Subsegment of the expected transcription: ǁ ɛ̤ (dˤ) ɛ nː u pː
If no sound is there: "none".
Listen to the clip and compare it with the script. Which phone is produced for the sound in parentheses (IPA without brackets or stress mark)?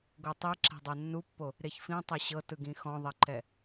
dˤ